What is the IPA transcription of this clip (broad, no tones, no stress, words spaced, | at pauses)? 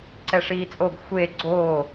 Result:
ǀɛʂiːt͡sʼoɡ xʷe ɡ͡ǀo